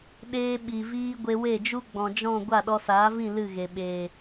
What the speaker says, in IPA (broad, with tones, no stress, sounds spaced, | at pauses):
ɗ eː˧ ɓ i˨ v iː˧ ɡʷ e˧ w e˦˨ d͡ʒ u˦ ɡ͡b ɔ̃˨ d͡ʒ ɔ̃˦˨ ɡʷ a˦˨ ɗ ɔ˧ s aː˨˦ v ĩ˦˨ l ɨ˦˨ ɣ e˨ ɓ eː˨